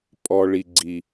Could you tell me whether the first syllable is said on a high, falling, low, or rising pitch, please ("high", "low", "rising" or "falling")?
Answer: low